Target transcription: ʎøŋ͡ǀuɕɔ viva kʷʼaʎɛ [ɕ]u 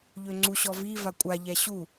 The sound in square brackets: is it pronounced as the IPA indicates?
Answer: yes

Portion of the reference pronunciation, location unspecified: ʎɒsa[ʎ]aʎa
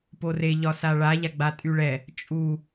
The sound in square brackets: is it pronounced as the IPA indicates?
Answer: no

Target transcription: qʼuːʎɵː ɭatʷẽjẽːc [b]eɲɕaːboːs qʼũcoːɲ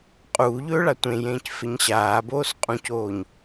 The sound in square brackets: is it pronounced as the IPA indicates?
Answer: no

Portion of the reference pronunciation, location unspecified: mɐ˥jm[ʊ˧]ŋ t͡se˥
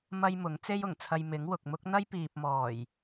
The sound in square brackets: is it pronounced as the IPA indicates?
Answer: no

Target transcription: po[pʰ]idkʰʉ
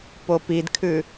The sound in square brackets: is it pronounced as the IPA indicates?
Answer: no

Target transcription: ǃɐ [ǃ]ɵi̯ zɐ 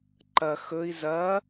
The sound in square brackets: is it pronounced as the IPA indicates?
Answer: no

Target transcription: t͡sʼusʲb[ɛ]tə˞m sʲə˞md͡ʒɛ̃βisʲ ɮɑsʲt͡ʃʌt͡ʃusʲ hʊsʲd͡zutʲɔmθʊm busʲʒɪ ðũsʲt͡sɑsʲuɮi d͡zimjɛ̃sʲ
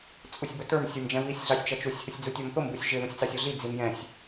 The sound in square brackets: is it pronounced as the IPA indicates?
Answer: no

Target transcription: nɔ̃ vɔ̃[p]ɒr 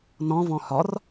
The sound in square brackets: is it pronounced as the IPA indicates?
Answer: no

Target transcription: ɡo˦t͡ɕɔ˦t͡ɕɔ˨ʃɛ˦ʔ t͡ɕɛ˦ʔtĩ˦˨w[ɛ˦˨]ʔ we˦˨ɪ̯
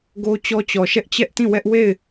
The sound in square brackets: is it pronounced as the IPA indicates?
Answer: no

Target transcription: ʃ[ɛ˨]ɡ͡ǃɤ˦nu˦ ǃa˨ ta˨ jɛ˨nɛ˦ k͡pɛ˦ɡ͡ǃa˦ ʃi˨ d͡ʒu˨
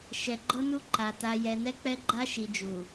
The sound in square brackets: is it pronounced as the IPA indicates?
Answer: yes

